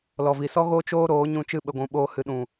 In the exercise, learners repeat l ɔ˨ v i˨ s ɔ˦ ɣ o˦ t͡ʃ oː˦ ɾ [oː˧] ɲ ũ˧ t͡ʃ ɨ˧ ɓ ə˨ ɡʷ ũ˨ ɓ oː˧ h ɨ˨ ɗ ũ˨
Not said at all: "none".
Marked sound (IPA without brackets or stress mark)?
oː˨˦